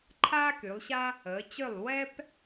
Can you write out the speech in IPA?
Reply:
ǃʰ aː˥ k y˩˧ lˠ ɕ a˥ | əː˩˧ t͡ɕ ʏ˥˨ lˠ w ɛ˥ p

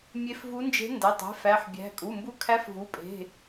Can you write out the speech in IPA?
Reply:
mʲ e˧˥ f v u˧˥ n d͡ʒ e̤˧˥ n d æ˩˧˩ tˤ e̤˧˥ f æ˩˧˩ ħ bʲ æ̤˩˧˩ kʼ u˩˧˩ m b u˧˥ kʰ æ˧˥ f v u˩˧˩ pʼ e̤˩˧˩

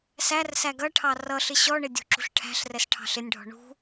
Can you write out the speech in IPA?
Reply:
s æ r s æ ɡ ʌ ʈʰ ɑ r ʌ ɬ ɪ ɕ ɔ ɳ ɪ dʲ ṳ ǁ ṳ ɬ ʈʰ æ̤ ɬ r ɛ s ʈʰ ɑ̤ ɬ ɪ nʲ ɖʱ ɔ̤ ɳ ṳ

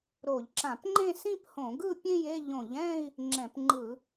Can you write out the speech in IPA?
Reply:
ɾ o˧˩˧ ʎ ǁ ã˧˩˧ p ŋ͡ǃ ẽ˥˧ s ĩ˥˧ p h õ˧˩˧ ɡ ɯ˥˧ pʲ ẽ˥˧ j e˥˧ ʎ õ˧˩˧ ʎ ɛ̃˥˧ i̯ | ŋ͡ǁ ɛ̃˧˩˧ p ŋ͡ǃ ɯ˧˩˧

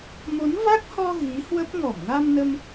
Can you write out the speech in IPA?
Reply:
m o˨˦ n v a˦˥ k̚ h ɔ˧ ɣ i˨˦ h w ə˦˥ p̚ ŋ ɔ˧˩ m ŋ a˧ m n ə˧ m

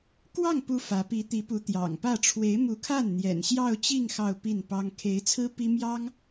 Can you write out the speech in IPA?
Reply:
k w ɑ˥˩ ŋ p u˧˥ f ä˧˥ p i˧˥ t̪ i˧˥ p u˧˥ t̪ j ɑ̰˨˩ ŋ p ä˥˩ ʈ͡ʂʰ w e˧˥ ɪ̯ m u˧˥ kʰ a˥˩ n n̪ j ɛ̰˨˩ n ɕ j ɑ˥˧ ʊ̯ t͡ɕ i˥˧ ŋ x ɑ˥˧ ʊ̯ p i˥˩ n p ɑ˥ ŋ kʰ e˧˥ ɪ̯ t͡sʰ ɹ̩˥ p i˥ m j ɑ˥ ŋ

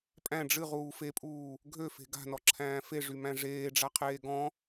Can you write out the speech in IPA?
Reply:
pʼ æ̃ ɖ͡ʐ ɨ ʁ uː f e pʼ uː | ɡʱ ø f e̤ ɡ a̤ n ɔ ǁʰ æ̃ː f e ʐ y m æ̃ ʐ eː ɖ͡ʐ a qʰ eː ɡ ɔ̃

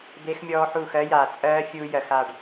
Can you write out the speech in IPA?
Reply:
d̪ e˦˥ x mʲ ɔː˦˥ ħ uː˥˧ x ɜ˦˥ j aː˨ t͡sʼ ɜː˦˥ fʲ uː˦˥ j ɜ˨ x a˥˧ ɖ

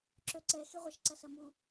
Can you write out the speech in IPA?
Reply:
ǁ œ ǀ ɛ x e ʁʷ ɐ ʃ ǀ ɐ s ɐ m u

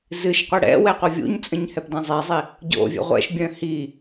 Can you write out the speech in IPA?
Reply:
z ɨ ʃ qʷ ɨ ɽ ɛ̰ w ɛ qʷ œ vʲ ṵ ɲ t͡sʼ ə̃ ɲ h ɛ p d ɛ̃ zˤ i zˤ i | ɟ o̰ vʲ ɛ̰ ʁʷ ɛ̰ ʃ bʲ œ̃ h i

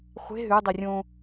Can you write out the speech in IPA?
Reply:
χʷ e̤ ɦ ʉ dˤ i rʲ õ

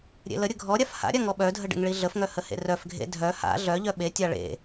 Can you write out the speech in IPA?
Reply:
ɾʲ ḛ l ə ɾʲ ə ɡʱ ɔ ɾʲ a f h a̰ ɾʲ a ŋ ɔ ɓ œ dʱ ə ɖ ḛ ŋ ɭ i ɮ ə f ŋ œ h ə h ḛ r œ f ɡʱ ḛ dʱ œ h a̰ ɮ œ ʎ œ ɓ e tʲ a ɭ ḛ

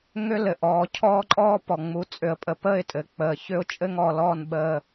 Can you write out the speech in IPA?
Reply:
ŋ ʏ˦ l ɘ˨ ʔ ɔː˨ cʰ ɔː˦ ǃʼ ɔː˦ p ɔ˨ ŋ͡m u˨ t͡sʼ ʏ˨ ə̯ pʼ ə˨ p əː˦˨ ɪ̯ tʼ ɘ˨ k͡p əː˨ ç ʏ˦ ʊ̯ t͡ʃʼ ɘ˦ ŋ ɔ˨ l ɔː˦˨ n ɓ əː˨

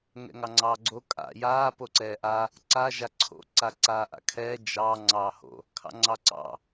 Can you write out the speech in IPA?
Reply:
ŋ ɛ̰ ŋ ɑ ŋ͡ǀ ɑː ɡ͡ǀ o kʼ a̰ j aː p o ǀ ɛː ʔ a | ǀ a ʒ a ǀʰ o̰ ǀ a ǀ aː ʔ a̰ kʰ ɛː d͡ʒ ɑ ŋ͡ǀ ɑː h o̰ | kʰ ɑ̰ ŋ͡ǀ ɑ ǀ ɑ̰

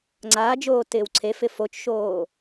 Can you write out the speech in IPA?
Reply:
ŋ͡ǀ aː d͡ʒ oː t ɪː w ǀʰ e f ɪ f o t͡ʃ ʃ oː

